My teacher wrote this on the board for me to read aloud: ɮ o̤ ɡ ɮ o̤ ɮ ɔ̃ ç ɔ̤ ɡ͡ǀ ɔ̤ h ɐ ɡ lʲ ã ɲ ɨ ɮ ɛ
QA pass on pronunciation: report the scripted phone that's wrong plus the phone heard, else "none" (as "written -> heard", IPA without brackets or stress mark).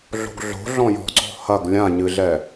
ç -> j